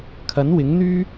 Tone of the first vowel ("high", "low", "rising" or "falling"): rising